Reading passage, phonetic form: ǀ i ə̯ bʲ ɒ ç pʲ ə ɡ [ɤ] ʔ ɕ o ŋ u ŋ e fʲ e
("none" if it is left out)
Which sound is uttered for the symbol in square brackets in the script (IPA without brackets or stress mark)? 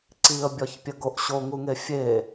o